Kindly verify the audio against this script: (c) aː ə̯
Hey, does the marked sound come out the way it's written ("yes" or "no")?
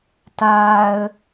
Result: no